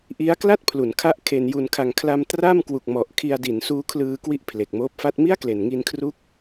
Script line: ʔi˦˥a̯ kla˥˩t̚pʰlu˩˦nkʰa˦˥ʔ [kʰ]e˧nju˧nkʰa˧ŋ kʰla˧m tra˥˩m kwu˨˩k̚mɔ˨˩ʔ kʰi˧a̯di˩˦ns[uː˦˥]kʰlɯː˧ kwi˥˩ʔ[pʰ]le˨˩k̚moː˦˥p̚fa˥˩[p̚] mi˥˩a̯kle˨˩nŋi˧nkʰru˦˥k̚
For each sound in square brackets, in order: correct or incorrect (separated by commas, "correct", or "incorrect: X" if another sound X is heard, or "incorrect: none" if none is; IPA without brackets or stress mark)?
correct, correct, correct, incorrect: t̚